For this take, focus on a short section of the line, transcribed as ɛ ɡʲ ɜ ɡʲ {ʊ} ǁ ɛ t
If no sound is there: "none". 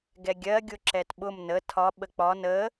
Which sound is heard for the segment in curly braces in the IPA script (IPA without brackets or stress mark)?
ʊ